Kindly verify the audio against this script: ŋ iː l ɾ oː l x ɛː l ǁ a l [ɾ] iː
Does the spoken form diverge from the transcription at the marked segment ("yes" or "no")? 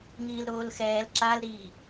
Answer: no